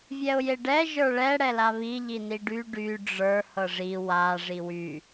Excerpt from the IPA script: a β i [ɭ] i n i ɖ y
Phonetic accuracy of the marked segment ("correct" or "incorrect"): incorrect